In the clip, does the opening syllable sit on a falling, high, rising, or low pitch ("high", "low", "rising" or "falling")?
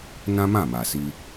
high